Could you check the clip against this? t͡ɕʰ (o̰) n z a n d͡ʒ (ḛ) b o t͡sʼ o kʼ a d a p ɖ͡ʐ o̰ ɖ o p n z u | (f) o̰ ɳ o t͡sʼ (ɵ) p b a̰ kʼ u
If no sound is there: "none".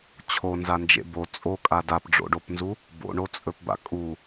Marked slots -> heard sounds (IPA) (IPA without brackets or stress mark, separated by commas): o, ḛ, b, ɵ